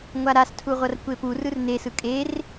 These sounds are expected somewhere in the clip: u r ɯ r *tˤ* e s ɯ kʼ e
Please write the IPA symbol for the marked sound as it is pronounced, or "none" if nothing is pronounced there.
n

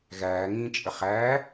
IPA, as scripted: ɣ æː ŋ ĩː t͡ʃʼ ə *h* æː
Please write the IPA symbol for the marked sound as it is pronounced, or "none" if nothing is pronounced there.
χ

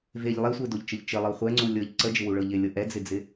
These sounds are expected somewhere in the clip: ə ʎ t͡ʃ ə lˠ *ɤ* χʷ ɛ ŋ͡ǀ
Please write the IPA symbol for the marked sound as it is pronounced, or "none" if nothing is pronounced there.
ɤ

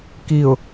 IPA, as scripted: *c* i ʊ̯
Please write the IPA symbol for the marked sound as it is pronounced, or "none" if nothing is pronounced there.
k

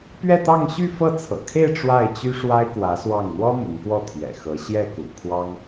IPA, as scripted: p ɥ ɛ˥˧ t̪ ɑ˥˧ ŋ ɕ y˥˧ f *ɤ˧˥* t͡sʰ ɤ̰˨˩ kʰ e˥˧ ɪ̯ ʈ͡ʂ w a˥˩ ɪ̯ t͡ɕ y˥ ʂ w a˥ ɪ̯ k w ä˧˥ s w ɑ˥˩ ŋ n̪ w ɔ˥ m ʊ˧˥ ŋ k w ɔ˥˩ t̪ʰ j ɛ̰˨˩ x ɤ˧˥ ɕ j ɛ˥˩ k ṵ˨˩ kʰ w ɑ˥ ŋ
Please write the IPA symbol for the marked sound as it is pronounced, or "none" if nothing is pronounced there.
ɤ˥˩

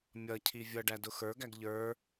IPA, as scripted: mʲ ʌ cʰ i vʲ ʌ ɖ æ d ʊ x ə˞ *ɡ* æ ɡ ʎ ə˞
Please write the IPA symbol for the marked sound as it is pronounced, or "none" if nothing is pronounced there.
ɡ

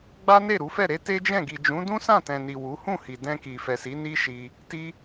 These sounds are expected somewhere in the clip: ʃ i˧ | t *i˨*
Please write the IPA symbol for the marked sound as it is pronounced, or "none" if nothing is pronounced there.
i˧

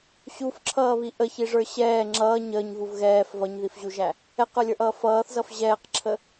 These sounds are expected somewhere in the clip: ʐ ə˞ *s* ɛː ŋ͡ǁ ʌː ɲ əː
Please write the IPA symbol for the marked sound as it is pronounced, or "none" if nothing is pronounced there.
ɕ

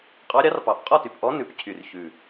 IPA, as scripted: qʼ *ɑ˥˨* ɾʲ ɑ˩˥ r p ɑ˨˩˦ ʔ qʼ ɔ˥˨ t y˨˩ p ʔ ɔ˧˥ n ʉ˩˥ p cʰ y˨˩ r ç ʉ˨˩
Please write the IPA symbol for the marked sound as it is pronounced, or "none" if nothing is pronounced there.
ɑ˧˥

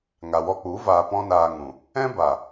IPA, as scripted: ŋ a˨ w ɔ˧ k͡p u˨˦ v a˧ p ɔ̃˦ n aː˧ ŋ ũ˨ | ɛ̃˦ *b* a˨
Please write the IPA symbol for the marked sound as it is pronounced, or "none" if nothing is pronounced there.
b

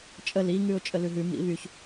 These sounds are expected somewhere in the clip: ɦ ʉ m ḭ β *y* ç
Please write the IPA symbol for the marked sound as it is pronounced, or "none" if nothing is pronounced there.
y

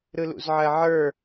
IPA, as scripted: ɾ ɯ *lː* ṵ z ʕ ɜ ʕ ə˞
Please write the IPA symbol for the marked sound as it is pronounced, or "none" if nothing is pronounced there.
l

